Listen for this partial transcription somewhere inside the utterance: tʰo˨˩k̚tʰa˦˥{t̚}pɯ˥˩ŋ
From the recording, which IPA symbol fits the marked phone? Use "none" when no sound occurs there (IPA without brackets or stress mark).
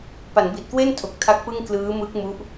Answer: k̚